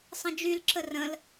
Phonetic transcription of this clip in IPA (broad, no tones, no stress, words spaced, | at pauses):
sˤə̃d͡ʒylǁə rə̃l